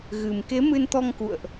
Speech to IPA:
ɣ ɨ˨˩ m k e˨˦ m ɨ˧ n t̪ ɔ˧ ŋ k ṵ˧˨ ə̯ ʔ

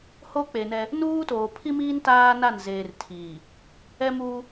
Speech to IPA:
h o˦ k͡p e˨ n ɛ˦ | n uː˦ t oː˨ pʰ i˦ m iː˦ n t aː˦ n a˦˨ n z eː˨ r tʰ iː˨ | ɛ˦ m uː˦

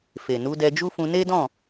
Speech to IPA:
f e˨ n u˨˦ d ɛ˧ d͡ʒ u˦ f ũ˧ n e˦ d ɔ̃˦˨

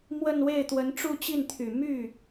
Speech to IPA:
m w ə˥˧ n w e˥˩ ɪ̯ t̪ w ə˧˥ n ʈ͡ʂ u˥˧ t͡ɕ i˥˩ n t̪ʰ y˨˩ m y˥˩

